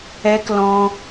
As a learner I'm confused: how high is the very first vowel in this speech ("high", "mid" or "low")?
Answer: mid